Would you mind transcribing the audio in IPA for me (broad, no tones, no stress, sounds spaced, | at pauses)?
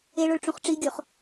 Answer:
e ɭ o ɭ ʈ͡ʂ ũ χ ʈ͡ʂ i ɡʲ o χ